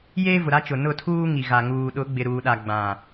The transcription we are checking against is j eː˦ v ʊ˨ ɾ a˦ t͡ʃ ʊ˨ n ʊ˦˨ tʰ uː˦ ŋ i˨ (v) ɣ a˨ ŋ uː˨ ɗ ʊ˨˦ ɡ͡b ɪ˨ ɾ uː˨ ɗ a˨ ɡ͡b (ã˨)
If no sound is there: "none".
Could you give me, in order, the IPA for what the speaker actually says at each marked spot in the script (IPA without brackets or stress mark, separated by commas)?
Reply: none, ã˨